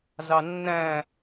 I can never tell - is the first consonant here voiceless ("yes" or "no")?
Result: no